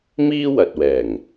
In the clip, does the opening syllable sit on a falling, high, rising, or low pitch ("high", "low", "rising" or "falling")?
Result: high